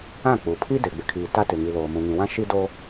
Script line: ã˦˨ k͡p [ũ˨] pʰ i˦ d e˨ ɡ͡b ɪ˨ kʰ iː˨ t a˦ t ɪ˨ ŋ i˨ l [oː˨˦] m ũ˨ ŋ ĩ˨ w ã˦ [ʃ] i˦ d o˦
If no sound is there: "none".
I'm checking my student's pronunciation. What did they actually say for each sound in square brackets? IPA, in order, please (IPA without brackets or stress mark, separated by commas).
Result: u˨, oː˨, ʃ